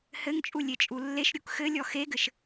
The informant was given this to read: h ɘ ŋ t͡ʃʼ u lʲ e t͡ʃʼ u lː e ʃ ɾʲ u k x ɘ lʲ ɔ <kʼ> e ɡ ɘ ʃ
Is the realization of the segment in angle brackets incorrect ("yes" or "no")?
yes